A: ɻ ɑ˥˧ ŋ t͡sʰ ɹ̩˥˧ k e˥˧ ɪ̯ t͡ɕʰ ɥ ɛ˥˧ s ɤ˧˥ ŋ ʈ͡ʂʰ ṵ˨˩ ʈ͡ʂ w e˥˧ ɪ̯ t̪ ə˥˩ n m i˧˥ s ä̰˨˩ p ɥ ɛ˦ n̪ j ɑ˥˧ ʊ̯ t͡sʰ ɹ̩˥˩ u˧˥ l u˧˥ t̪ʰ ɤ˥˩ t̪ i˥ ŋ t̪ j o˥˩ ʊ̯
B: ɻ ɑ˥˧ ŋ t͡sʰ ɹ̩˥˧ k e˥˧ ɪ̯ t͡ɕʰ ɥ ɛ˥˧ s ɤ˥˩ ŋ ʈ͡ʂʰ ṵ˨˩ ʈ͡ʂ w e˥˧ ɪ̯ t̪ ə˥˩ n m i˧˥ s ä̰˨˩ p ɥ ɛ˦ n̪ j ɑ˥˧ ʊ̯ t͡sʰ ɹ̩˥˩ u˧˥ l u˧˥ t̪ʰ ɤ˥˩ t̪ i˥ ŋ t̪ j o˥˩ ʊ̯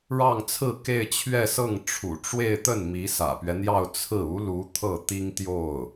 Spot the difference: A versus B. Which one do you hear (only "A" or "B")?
B